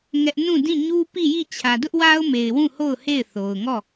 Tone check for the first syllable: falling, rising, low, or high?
high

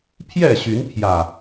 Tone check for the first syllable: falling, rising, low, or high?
falling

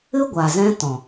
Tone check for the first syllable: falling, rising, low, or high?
high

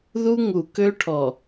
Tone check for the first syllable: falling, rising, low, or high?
high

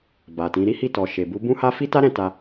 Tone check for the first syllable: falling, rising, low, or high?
low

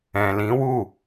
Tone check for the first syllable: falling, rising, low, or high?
low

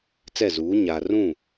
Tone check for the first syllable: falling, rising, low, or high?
falling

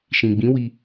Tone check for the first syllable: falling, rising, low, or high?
low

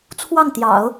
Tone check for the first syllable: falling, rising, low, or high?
falling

